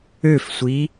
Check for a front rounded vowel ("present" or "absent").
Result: present